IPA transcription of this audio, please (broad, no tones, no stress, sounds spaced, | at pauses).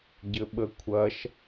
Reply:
ɟ ɘ ɓ ə kʷʰ ɐ ʃ